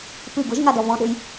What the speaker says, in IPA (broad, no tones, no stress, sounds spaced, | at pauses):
p ɨ ɡ ʊ ʒ ŋ a d ɔ v ɔ̃ ɗ ʊ j